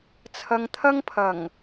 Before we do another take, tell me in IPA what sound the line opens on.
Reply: t͡sʰ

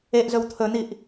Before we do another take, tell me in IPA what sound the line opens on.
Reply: e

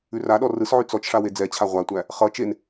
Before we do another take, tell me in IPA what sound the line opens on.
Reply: ʉ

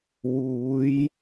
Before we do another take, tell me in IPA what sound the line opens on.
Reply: w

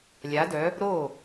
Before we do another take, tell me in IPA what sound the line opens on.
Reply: lʲ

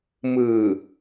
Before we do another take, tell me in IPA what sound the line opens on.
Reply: m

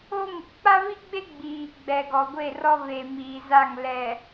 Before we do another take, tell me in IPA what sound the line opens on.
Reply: o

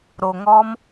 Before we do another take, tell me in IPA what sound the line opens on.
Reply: ɾ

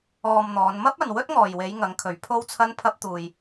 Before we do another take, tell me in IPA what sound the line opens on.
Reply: ɔː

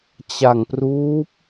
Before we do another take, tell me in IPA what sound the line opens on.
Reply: t͡ɕ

